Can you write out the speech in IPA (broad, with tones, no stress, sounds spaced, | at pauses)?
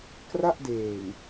k r a˥˩ ʔ d eː˨˩ ŋ